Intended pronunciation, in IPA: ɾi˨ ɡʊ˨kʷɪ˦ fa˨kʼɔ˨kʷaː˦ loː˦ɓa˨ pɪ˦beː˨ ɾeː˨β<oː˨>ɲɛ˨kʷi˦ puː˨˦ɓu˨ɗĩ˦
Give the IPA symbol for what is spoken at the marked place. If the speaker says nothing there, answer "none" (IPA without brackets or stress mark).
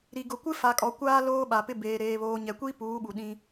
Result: oː˨